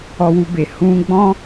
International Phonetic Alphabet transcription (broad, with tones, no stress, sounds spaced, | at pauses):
ɔ˧ w u˧ b e˨ h ũ˧ ɡ͡b ɔ̃˦